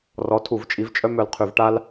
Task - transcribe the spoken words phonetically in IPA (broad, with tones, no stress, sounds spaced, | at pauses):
r ɔ˨˦ tʰ u˧˩˧ v t͡ʃʼ i˨˦ v t͡ʃʼ œ˦ m œ˧˩ l qʰ y˧˩˧ v ʈ a˦ l